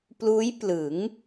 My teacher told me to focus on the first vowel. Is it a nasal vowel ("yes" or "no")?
no